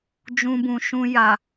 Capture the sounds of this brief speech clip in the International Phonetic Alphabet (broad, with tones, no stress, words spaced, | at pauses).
d͡ʒũ˧bũ˨ʃũ˧ ja˨